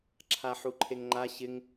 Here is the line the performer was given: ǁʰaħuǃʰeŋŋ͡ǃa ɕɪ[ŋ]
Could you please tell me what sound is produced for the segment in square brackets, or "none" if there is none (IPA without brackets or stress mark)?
ŋ